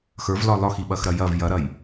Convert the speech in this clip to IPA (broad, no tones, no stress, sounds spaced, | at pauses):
x ə˞ v l ɒ l ɒ x i ɓ ɐ x ɾ ɐ j ɐ v j ɐ ɾ ɐ j